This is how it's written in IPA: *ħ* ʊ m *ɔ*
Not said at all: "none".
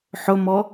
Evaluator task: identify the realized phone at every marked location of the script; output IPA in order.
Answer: ħ, ɔ

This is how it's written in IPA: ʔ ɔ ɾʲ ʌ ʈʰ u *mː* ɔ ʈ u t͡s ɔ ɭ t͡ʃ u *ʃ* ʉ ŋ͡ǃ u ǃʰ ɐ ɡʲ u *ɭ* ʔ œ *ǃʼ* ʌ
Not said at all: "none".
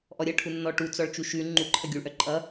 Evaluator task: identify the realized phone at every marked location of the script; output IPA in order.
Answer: nː, ʃ, ɭ, ǃʼ

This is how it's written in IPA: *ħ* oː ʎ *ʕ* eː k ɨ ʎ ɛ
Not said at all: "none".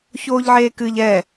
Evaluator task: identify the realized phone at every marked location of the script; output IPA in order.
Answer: ç, ʕ

